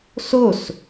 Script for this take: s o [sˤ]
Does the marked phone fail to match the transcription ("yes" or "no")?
yes